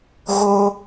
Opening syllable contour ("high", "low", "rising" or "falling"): high